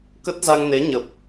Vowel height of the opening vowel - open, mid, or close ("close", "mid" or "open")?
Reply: mid